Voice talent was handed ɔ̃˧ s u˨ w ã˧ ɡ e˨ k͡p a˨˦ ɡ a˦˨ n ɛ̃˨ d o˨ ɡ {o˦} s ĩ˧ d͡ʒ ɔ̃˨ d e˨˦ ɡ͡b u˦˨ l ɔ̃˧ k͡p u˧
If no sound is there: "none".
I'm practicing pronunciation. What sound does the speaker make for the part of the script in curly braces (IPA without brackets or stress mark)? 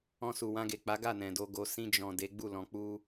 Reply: o˨